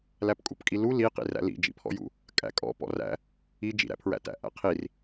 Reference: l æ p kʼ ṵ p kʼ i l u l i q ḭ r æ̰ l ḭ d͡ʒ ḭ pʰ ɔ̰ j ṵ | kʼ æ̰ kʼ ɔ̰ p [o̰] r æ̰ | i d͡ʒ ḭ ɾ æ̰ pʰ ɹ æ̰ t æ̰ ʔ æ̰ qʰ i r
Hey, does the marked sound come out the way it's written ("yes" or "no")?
no